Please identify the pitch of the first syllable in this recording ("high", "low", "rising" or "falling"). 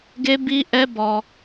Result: high